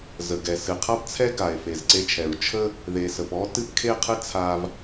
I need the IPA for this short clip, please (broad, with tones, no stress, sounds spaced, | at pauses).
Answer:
z ə˩ ɡ ɛ˩ s ɨ˩ qʰ a˥ p t͡sʰ ɛ˥ ɡ a˩ e̯ f e˩ z ǀ e˧ t͡ʃʰ ɛ˩ ɹ t͡ʃʰ ə˥ | ð e˩ s ə˩ p ɔ˥ t ɨ˥ p kʰ e˥ qʰ ɨ˥ t͡sʰ a˧ v